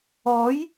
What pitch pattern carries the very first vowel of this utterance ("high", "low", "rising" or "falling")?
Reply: rising